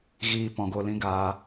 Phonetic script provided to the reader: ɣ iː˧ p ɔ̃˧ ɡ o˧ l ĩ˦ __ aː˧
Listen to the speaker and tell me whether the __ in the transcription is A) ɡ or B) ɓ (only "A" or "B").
A